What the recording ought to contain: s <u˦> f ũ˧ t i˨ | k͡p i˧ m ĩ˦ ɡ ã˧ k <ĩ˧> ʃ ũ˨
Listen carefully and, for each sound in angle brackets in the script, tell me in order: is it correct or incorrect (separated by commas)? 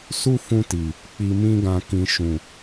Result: correct, incorrect